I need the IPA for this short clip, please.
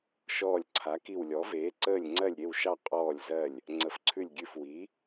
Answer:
ʃ ɔː˧˩ lʲ ǀʰ a˩˥ k i˧˩ w lʲ ɔ˩˥ v eː˩˥ ǀ əː˧˩ lʲ ŋ͡ǀ ɜ˧˩ lʲ ɾʲ e˧˩ w ʃ ɑ˧˩ qʼ ɔː˧˩ lʲ z ɜ˧˩ lʲ | ŋ͡ǀ ə˩˥ f ǀʰ ʉ˧˩ lʲ ɡʲ ʉ˧˩ f w i˩˥

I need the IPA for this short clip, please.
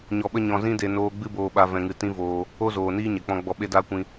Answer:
ɲ ɔ˧ ɓ ə˦ ɲ ɔ̃˧ z ĩ˦ d e˧ n oː˦ ɡ͡b ɨ˦ b oː˧ ɓ a˧ v ɛ̃˧ ŋ ɨ˧ t ĩ˦ v oː˧ | o˧ z oː˨ n iː˧ ɲ ɛ˨ k͡p ɔ̃˧ ɡ͡b ɔ˧ ɓ e˦ d aː˦ kʷ ĩ˧

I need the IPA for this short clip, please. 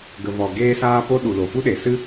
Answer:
ɡ ə˨ v ɔ˨ ɡ eː˧ s aː˧ p o˧ ɗ u˨ l o˨ f u˦ ɗ e˨ s ɨ˦

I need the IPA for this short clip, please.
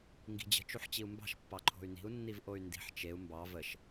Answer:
ŋ ɡ i̤ d͡ʑ ə̤ t͡ʃ u ħ t͡ɕ i u̯ m b ɑ̤ ʃ pː ɑ ǃʰ o̤ y̯ n i̤ u̯ nː i v ʔ o y̯ n d i̤ ħ t͡ʃ e u̯ m b ɑ v ə ʃ

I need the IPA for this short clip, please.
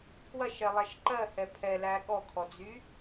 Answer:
pʰ w ɐ ʃ ɛ lˠ æ ʃ ǃ ɜ h ɛ pʰ ɛ l æ ɠ ɔ kʰ ɔ d͡z y

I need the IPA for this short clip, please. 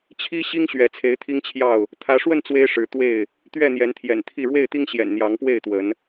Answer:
t͡ɕʰ i˦ ɕ i˦ ŋ ɕ ɥ ɛ˨˦ t͡sʰ e˨˦ ɪ̯ t̪ʰ i˦ ŋ t͡ɕʰ j ɑ˥˨ ʊ̯ | t̪ʰ ä˨˦ ʂ w ə˥˨ n t͡s w e˦ ɪ̯ ʂ ɻ̩˨˦ t̪ w e˥˨ ɪ̯ | t̪ ɥ ɛ˥˨ n̪ j ɛ˨˦ n t̪ʰ j ɛ̰˨˩ n t̪ʰ i˥˨ ɻ w e˥˨ ɪ̯ t̪ i˦ ŋ ɕ j ɛ̰˨˩ n n̪ j ɑ˨˦ ŋ p w e˥˨ ɪ̯ t̪ w ə˨˦ n

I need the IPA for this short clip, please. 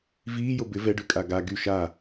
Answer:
v iː j o b ɪ v ɛ ɖ ʉ kʼ a ɡ a ɡ y ʃ a

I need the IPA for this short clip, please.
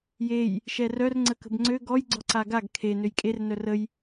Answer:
j e j | ʃ ɛ r œ r ŋ͡ǀ ə k ə̤ b ŋ͡ǀ ø ɡ ɔ j ɡ͡ǀ ɔ ǀ a ɡ a ɡ kʰ e n ø j kʼ e r n œ r ə j

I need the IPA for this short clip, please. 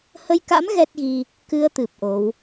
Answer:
h ə˧ j k a̰˧˥ m ɣ ɛ˦˥ t̚ ɣ i˧ | k ɨ˧ ə̯ t̪ ɨ˨˩ p̚ ʔ o˨˦ w

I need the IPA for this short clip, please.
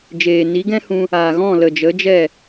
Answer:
d͡ʒ eː˨ n i˨˦ ɡ ɛ̃˦ h ũ˧ | aː˨ ɣ ɔ̃˦˨ l ə˨ d͡ʒ ə˨˦ d͡ʒ ɛ˦˨

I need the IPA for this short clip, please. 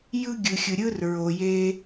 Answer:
j ɯ˦ ɡʲ ɯ˨ xʲ ɯ˨ ɾʲ ɯ˦ r ɹ o˨ j e˦

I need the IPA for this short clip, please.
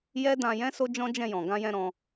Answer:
j ɛ˦ d ã˧ j ɛ̃˦ s o˦ d͡ʒ ɔ̃˦ d͡ʒ ɛ̃˧ j ɔ̃˨ ɡ ã˧ j ɛ̃˧ ɾ ɔ̃˧

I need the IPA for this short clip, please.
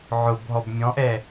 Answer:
ʕ ʊ b ɦ ɔ b mʲ ɔ̃ ʔ ɛ

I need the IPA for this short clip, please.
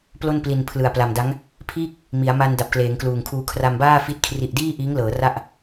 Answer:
p l o˥˩ n p l i˨˩ n pʰ l ɯ˨˩ a̯ p l a˨˩ m d a˦˥ ŋ | pʰ iː˥˩ k̚ | m i˩˦ a̯ m a˧ n d a˨˩ p̚ k l eː˩˦ ŋ k l uː˨˩ ŋ kʰ uː˧ kʰ r a˧ m b aː˥˩ f i˦˥ t̚ kʰ r i˨˩ ʔ d iː˥˩ ʔ iː˦˥ ŋ l ɤː˩˦ r a˥˩ ʔ

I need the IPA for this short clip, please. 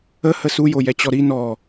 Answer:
ə h ə s u j o j ɛ t͡ɕ ɔ ɾ i n ɔ

